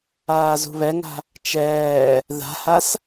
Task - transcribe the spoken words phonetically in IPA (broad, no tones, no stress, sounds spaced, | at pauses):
aː z ṳ β ɛ ŋ a̤ | t͡ʃ ɛː | ð a̤ h a s